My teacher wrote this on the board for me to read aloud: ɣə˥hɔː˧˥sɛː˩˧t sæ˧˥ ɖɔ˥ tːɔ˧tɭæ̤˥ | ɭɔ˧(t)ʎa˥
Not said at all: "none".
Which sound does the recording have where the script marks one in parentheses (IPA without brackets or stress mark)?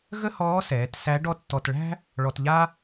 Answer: t